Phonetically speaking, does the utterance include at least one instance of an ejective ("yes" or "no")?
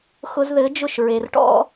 no